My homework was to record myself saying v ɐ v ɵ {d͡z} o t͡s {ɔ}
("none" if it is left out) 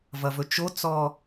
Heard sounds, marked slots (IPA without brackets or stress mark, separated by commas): t͡ʃ, ɔ